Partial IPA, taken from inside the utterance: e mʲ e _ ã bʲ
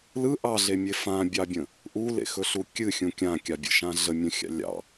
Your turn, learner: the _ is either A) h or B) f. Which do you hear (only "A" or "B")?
B